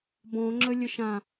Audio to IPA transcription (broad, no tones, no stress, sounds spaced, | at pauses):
b ɔ̃ ŋ͡ǁ ə lʲ ə ʃ ã